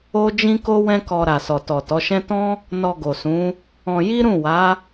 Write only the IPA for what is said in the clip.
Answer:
o˦ d͡ʒ ĩ˦ k o˦ w ɛ̃˦ k ɔ˧ ɾ a˨ s ɔ˨ t ɔ˨ t ɔ˨˦ ʃ ɛ̃˦ t ɔ̃˦ | n ɔ˧ ɡ o˨ s ũ˨˦ | ɔ̃˧ j i˦ ɾ ũ˦˨ w a˨˦

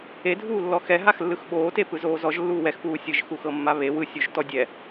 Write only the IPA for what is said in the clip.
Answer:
e dʱ uː lː ɔ x ɛ ɦ a x lː ɯ x ɓ oː t e p ɯ z oː z ɔ ʒ lː uː w ɛ x p uː sʲ ɯ ʒ x u x ɤ mː a β e w ɯ sʲ u ʒ t ɔ dʲ ɛ

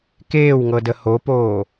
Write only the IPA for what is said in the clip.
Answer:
k eː w ŋ ɤ d ə h o p oː

